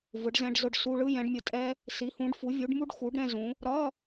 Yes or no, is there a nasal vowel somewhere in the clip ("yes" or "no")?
yes